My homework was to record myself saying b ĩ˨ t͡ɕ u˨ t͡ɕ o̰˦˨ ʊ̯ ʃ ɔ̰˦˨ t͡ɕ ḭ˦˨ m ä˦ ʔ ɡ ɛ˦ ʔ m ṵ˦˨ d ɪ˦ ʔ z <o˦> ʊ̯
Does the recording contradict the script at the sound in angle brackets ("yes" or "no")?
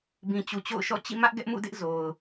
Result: yes